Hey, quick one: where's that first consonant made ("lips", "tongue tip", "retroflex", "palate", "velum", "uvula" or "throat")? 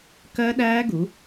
velum